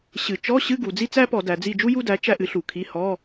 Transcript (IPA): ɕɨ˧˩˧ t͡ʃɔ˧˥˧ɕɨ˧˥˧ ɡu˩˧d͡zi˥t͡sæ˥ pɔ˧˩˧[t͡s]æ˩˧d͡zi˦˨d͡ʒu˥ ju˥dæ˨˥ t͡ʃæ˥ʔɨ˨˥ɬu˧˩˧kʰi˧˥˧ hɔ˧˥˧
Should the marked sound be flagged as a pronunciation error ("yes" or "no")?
yes